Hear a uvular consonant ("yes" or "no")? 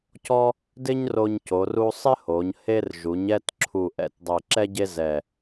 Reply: no